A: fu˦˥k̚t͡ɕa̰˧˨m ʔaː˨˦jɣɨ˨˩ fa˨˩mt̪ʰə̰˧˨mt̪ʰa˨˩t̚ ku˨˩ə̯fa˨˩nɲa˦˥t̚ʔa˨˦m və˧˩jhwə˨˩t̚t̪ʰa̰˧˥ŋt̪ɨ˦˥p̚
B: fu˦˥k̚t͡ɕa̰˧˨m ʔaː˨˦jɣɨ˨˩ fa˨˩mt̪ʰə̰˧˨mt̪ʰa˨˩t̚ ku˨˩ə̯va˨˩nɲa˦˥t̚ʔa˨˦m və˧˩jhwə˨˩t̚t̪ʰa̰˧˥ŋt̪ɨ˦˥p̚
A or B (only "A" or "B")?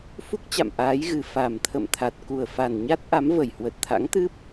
A